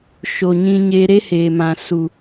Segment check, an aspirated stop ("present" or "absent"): absent